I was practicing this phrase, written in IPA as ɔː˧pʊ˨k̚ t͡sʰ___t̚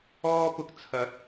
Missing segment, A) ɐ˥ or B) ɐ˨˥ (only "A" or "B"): B